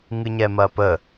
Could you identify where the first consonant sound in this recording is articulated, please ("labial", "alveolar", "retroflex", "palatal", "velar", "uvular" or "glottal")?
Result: velar